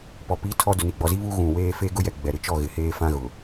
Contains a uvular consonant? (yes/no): no